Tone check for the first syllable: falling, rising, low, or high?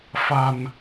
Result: low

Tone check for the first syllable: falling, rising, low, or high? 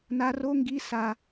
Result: high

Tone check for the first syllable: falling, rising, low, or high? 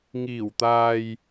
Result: low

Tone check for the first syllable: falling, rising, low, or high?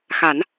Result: low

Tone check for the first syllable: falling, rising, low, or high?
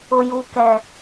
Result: low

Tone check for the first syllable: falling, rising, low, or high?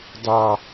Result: low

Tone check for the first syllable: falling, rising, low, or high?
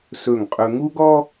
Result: falling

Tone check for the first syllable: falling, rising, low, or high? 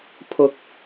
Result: rising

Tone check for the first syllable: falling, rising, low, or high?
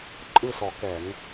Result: falling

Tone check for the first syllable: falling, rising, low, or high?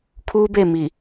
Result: high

